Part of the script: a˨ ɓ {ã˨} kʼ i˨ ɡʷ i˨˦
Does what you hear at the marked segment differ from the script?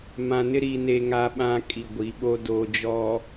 no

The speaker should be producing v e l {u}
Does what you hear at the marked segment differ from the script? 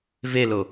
yes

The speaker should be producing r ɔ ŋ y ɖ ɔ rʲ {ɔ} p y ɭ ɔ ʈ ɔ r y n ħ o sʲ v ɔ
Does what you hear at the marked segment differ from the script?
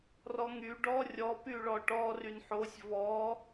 no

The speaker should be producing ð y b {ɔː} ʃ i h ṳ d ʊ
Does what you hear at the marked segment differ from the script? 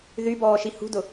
no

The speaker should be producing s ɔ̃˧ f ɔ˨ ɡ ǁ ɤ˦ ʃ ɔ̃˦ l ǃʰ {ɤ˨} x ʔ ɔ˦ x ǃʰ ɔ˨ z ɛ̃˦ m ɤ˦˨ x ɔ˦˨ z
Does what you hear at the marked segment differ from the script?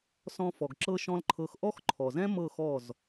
yes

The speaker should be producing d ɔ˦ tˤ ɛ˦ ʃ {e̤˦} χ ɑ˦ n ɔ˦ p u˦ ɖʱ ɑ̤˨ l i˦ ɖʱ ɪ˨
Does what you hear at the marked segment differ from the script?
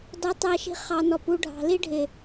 yes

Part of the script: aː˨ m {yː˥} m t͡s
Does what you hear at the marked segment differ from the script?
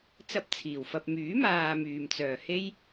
yes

